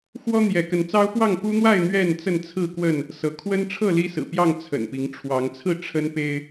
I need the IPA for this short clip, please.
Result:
x w ɔ˦ n̪ j ɛ˨˦ k ə˨˦ n t͡s ɑ˦ ʊ̯ p w ɑ˥˨ ŋ p u˦ n̪ w a˥˨ ɪ̯ n̪ ɥ ɛ˥˨ n t͡s ə˥˨ n t͡sʰ ɹ̩˥˨ k w ə˥˨ n | s ɤ˨˦ kʰ w ə˦ n ʈ͡ʂʰ ɤ˥˨ l i˦ s ɹ̩˨˩ p j ɑ˥˨ ŋ t͡sʰ ə̰˨˩ n p i˨˦ ŋ ʈ͡ʂʰ w ɑ˨˦ ŋ t͡sʰ ɹ̩˥˨ ʈ͡ʂʰ ə˦ n p e˦ ɪ̯

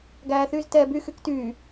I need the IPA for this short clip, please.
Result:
ɡ æː θ yː z t ɛː b y x y k t yː

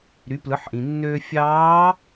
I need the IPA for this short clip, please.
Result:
ɾ y˩˧ p l ɯ˩˧ ħ ʔ ĩ˩ nː øː˧ fʲ ɑː˧˥

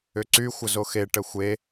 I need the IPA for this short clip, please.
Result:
ʏ ǀ y xʷ ə z o x e ʈ ə xʷ e

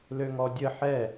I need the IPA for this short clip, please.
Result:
l ø ŋ ɔ dʲ ə ħ ɛ

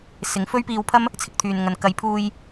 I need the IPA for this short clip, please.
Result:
s ɪ˨˧ ŋ f ɵ˥ ɥ p iː˧ w pʰ ɐ˥ m | t͡sʰ ɪ˧ k̚ t̪ʰ yː˨ n ŋ ɐ˨ n k ɐ˨˧ j pʰ uː˧ j

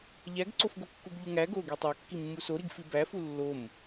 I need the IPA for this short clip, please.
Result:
ʎ æ ɡ ǀ o f ɡ o kː u ɡ ʎ u ŋ æ ɡ o ɡ i tˤ æ kː i mː u s o ɾ i ɡ f i b æ f u lː o m

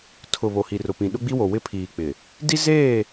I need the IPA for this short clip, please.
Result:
tʰ ʊ˨ β o˨ h i˨ r ʊ˨ p ĩ˨ ɗ ʊ˦ ɡ͡b i˦ w o˨ w ɪ˦ pʰ iː˨ k͡p ɪ˨ | d i˦ z eː˦˨

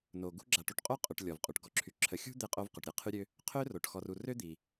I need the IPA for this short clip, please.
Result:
n o˩ ɡ ṳ˦ ɡ͡ǁ a˨ ʈ u˨ ʈ qʼ o˥ qʼ ø˨ ʈ lʲ ɔ˩ v qʼ u˩ ʈ ɡ ɔ˨ ǁʰ y˨ ǁʰ ə˨ xʲ ṳ˥ d̪ e˦ qʼ o˦ v q ø˩ ʈ ɾʲ ɛ˥ qʰ y˦ ɾʲ ø˦ | qʰ ø˥ r o˩ ʈ x ɔ˨ r u˨ r ø˥ d̪ i˩

